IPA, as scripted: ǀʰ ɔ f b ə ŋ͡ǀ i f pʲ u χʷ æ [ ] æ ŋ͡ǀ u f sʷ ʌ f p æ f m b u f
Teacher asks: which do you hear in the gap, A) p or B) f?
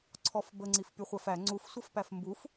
B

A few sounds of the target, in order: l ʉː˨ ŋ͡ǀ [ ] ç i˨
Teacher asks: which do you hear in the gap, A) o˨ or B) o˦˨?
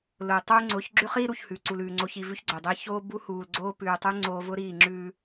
A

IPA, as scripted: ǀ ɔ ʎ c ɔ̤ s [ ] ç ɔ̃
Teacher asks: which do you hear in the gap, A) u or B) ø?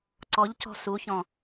A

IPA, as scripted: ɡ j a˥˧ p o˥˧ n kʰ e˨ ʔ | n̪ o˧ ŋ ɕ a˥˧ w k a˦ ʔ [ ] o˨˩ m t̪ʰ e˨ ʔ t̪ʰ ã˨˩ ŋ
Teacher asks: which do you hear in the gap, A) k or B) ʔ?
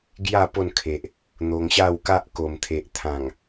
A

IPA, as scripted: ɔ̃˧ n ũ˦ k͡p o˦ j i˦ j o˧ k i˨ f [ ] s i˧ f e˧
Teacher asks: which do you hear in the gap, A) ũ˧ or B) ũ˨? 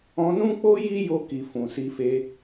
B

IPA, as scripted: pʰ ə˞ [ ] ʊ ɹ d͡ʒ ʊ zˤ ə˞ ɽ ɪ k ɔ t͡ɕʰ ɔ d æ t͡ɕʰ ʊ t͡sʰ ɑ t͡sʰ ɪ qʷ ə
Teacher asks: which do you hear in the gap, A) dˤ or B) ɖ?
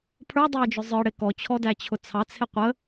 A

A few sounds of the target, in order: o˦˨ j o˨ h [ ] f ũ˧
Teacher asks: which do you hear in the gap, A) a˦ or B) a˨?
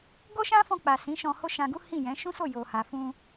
B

